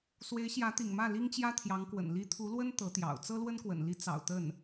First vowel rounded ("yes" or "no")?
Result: no